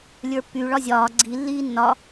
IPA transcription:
lʲ ə˞ pː y ɭ ɒ zʲ ɒː ɡ͡ǀ i lː iː nː ɒ

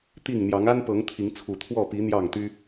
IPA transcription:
t̪ i˥˨ ŋ n̪ j ɑ˨˦ ŋ a˦ n p ɤ˨˦ ŋ t̪ʰ i˨˦ ŋ t͡sʰ u˨˩ t̪ʰ w ɔ˥˨ p i˨˦ n̪ j ɑ˥˨ ŋ t̪ y˦

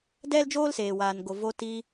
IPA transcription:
d ɛ˦ l d͡ʒ oː˦ l s eː˨ w aː˨ n ɡ o˨ v o˧ t i˧

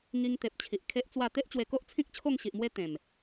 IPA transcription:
ŋ i˧ ŋ t̪ e˨ p̚ t͡ɕʰ i˨ ʔ kʰ e˦ ʔ t͡s w a˥˧ t̪ e˦ ʔ t͡ɕ w e˧ k o˦ ʔ t͡sʰ ĩ˦ k̚ t͡ɕʰ o˥˧ ŋ ɕ i˨ ʔ m w e˦ t̪ ẽ˨˩ m

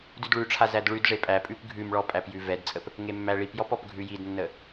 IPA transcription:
d ʉ d ɭ ʉ ʈ͡ʂʰ a z æ d ɭ ʉ d ʐ e pʼ æ pʼ ʉ p ɡʱ ʉ m ɭ ɔ pʼ æ p j ʉ v ɛ d t͡sʼ ə p | ŋ e mː æ ɭ i p j ɔ p ɔ p ɡʱ ʉ j i d nː ə

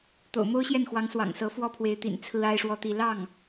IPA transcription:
t̪ o̰˨˩ ʊ̯ m o˥ ʊ̯ ɕ j ɛ˥˩ n x w ɑ˧˥ ŋ s w ɑ̰˨˩ ŋ s ɤ˧˥ f w ɔ˥ pʰ w e˧˥ ɪ̯ t̪ ḭ˨˩ n t͡sʰ ɹ̩˥ a˥ ɪ̯ ʂ w ɔ˥˧ t̪ i˥˧ l ɑ˥˩ ŋ

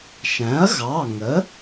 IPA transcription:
ʃ æ̃˩˥ ɐ̯ ɣ ɑ˩˧˩ ŋ ə˩˥

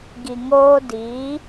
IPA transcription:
ɡ i˨ ŋ oː˦ d i˨˦

